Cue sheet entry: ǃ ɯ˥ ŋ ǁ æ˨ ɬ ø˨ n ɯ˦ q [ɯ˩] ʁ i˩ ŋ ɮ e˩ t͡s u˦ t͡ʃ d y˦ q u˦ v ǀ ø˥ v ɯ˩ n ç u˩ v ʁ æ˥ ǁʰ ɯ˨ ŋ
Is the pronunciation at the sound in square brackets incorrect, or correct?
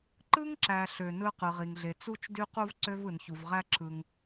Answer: correct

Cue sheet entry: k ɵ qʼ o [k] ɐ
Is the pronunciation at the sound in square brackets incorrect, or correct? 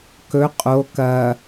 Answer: correct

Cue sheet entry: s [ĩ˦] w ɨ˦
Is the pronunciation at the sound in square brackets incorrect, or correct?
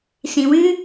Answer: incorrect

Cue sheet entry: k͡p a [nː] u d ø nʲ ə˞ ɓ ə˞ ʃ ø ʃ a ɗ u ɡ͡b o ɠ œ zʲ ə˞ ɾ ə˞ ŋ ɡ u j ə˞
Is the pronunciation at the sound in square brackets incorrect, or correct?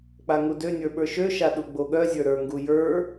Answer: incorrect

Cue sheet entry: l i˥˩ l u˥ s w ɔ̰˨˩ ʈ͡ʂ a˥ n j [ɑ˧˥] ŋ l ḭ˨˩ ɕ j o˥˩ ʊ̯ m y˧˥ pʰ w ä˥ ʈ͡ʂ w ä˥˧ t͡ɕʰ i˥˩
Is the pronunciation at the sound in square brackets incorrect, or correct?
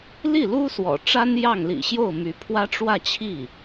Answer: incorrect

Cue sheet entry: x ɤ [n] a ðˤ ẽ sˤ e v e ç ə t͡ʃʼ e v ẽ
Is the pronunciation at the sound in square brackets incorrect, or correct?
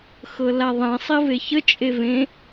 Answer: incorrect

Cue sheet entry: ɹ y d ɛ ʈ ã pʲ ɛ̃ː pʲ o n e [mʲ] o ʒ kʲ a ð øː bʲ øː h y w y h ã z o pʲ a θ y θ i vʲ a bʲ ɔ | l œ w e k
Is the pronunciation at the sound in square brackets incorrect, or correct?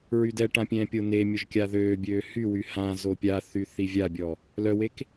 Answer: correct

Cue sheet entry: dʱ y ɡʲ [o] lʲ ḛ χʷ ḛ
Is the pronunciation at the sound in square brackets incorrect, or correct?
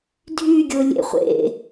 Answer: correct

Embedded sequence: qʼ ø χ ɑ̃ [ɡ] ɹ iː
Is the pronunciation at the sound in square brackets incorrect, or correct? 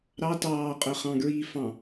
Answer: correct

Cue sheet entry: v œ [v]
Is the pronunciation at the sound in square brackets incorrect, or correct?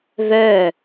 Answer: incorrect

